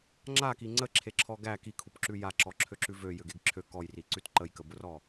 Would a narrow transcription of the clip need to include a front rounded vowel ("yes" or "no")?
yes